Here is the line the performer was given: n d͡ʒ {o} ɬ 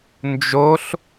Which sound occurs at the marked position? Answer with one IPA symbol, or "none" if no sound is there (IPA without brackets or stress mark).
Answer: o